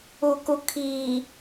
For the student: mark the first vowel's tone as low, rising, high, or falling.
low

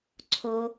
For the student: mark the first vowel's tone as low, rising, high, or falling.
high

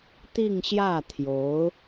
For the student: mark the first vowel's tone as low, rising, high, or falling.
falling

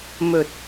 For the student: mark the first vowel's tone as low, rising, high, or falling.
low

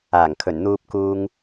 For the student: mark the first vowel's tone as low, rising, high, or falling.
low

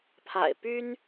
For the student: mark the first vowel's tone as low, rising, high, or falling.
low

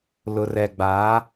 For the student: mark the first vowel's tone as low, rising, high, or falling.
low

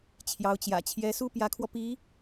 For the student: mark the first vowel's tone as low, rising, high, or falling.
rising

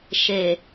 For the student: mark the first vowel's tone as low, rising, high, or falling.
low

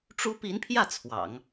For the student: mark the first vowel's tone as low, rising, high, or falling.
high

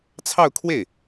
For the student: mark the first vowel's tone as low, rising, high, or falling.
falling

